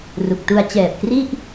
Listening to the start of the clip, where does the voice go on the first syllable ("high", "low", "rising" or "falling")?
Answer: low